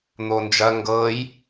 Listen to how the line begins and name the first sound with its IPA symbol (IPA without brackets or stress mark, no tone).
n̪